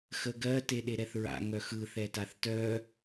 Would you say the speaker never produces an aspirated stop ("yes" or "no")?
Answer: yes